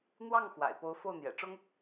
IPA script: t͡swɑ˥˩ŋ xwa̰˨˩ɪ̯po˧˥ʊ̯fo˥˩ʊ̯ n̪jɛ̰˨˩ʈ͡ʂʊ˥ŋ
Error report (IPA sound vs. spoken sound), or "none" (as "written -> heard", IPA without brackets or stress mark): t͡s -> n̪